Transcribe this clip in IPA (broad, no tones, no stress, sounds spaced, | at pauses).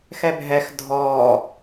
x ɛ bʱ ɛ x dʱ ɔː